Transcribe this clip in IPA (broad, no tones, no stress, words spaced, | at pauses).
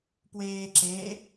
pweːǁe